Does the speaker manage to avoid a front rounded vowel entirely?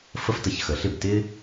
yes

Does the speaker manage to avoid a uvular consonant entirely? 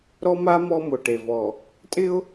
yes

